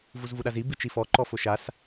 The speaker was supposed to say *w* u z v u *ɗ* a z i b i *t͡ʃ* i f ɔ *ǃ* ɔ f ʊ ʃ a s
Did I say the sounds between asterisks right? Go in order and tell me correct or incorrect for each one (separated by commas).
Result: incorrect, correct, correct, correct